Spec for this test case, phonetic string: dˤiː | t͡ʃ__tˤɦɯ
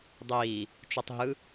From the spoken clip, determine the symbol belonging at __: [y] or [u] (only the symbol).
u